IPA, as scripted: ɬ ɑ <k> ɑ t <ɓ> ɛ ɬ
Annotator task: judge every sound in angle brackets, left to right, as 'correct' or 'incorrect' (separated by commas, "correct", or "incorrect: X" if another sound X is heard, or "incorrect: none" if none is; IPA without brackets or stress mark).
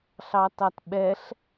incorrect: t, correct